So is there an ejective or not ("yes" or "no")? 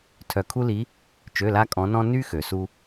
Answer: yes